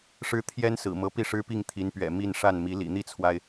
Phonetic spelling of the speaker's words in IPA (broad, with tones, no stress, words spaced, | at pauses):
ʂɻ̩˥ t̪ʰjɛ˥nsɹ̩˨˩mɤ˧˥ pi˥˩ʂɻ̩˥pi˥˩ŋ t̪ʰi˧˥npɥɛ̰˨˩ mi˥˧nʂa˥˩nmi˧˥ lḭ˨˩n̪i˥˩t͡sʰwa˩ɪ̯